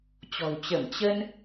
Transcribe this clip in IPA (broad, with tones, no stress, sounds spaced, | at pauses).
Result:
t͡ɕ ɔ̤˨˩ w t͡ɕ ə˧˩ m t͡ɕ ə˧ n